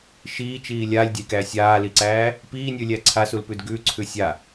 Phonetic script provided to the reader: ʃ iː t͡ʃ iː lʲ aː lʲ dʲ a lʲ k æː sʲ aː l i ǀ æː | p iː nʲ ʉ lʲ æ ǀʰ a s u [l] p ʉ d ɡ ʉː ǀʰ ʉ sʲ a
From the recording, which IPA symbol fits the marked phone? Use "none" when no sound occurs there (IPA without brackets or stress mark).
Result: l